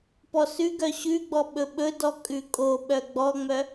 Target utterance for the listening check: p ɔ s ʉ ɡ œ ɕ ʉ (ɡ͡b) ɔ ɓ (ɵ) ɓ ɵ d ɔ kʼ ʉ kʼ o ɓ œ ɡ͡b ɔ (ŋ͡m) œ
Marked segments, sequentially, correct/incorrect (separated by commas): correct, correct, correct